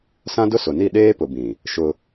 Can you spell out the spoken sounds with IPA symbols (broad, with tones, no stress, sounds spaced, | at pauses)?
s ã˦ d ʊ˦ s ʊ˨ n i˦˨ ɗ eː˦ p ʊ˨ b ĩ˨ | ʃ ʊ˦